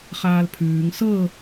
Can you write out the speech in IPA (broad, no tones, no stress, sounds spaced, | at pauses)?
χ aː l pʰ ʉː ŋ s ɤ